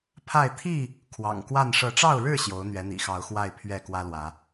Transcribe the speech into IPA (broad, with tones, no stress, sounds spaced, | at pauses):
pʰ a˥˨ ɪ̯ t̪ʰ i˥˨ | kʰ w ɑ̰˨˩ ŋ k w a˥˨ n ʂ ɤ˨˦ ʈ͡ʂ ɑ˥˨ ʊ̯ ɻ ɻ̩˥˨ ɕ j o˨˦ ʊ̯ n̪ ɥ ɛ˨˦ n̪ ḭ˨˩ x ɑ˨˦ ʊ̯ x w a˥˨ ɪ̯ pʰ ɥ ɛ˥˨ k w ä˦ l w ä˨˦